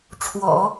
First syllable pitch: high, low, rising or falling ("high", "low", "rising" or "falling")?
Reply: low